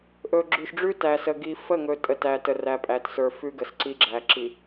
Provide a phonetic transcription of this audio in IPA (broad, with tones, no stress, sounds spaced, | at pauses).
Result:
ʔ ɵ˨ ɡ͡ǁ ʉ˨ ʃ ɖ͡ʐ ʉ˦ t æ˨ s ə˨ ɡ i˨ f ə˦˨ ŋ ɵ˨ tʼ ə˨ t æ˨ t ə˨ r æ˨ pʼ æ˨ t s ə˞˨ f ʉ˦ ɡ ə˨ s ǀ i˦ ɡ͡ǁ æ˨ ǁ i˨